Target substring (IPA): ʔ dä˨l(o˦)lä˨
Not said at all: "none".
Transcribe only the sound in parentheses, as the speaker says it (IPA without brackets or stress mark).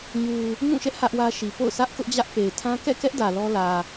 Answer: ɔ˦